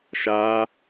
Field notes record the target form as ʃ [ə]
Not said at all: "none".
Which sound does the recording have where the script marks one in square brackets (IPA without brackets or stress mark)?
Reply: a